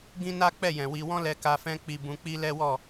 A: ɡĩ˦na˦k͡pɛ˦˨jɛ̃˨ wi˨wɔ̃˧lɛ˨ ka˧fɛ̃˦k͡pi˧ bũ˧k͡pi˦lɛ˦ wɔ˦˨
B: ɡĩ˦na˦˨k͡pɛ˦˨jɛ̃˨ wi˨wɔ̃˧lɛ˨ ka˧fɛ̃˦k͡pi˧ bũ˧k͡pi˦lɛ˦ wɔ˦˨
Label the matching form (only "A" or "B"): A